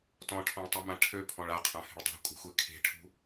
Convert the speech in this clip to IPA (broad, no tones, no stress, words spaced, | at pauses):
tɔ̃ʈʰɔ̃ɭtˤømã ʈʰøpʰɔ̃ɭ aqʰãhe̤ɭ dˤa̤kʷʼa̤xʷe kʰe̤ʈʰṳ